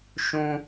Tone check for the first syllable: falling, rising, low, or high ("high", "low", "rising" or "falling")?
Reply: high